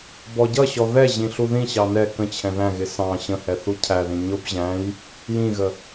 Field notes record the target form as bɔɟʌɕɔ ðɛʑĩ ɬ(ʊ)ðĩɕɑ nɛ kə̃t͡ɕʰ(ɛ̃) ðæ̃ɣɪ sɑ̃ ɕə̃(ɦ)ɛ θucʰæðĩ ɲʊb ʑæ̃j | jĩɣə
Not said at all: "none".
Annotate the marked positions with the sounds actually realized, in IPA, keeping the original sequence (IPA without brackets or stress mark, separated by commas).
u, ɛ̃, h